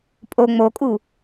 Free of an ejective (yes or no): no